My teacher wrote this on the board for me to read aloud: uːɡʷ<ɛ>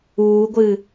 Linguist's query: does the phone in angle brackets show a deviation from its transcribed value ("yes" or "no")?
yes